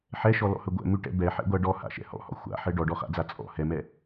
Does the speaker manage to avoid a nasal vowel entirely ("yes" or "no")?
yes